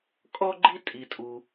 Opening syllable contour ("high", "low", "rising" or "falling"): high